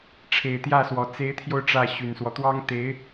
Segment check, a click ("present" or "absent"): absent